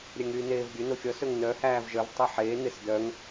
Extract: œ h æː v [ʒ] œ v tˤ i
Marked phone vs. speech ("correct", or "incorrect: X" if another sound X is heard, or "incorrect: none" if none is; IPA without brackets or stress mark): correct